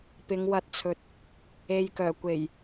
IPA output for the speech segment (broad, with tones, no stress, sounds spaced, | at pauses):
p ɪ˨˧ ŋ w ɐ˧ t̚ t͡sʰ ɵ˨ t̚ | e˨ j k œː˨˩ kʷ e˨˩ j